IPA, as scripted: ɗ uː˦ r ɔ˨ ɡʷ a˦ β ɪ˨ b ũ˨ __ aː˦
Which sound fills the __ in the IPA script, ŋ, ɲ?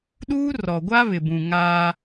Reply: ŋ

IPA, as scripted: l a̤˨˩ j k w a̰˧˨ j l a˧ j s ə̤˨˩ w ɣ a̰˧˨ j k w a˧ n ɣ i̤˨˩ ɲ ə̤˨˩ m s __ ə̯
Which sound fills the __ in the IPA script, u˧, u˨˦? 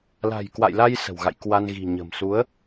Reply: u˨˦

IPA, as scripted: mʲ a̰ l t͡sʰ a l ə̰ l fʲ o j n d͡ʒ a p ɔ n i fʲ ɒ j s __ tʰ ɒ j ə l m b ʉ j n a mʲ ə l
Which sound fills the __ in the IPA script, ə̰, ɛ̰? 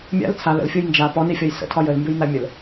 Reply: ə̰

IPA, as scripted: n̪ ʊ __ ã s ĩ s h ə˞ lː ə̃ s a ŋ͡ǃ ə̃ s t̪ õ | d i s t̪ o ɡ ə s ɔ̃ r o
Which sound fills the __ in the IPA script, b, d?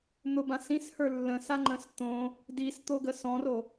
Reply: b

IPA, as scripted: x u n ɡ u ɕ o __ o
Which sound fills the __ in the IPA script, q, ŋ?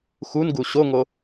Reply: ŋ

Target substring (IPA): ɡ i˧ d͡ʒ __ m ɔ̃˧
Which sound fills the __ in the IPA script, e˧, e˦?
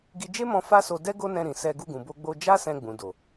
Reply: e˦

